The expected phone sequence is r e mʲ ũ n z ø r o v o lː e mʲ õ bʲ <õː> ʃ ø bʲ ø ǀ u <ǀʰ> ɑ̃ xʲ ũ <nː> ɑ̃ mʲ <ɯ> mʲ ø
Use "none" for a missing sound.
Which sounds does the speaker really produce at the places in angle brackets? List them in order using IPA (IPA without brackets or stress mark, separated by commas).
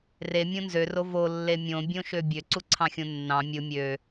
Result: õ, ǀʰ, nː, ɯ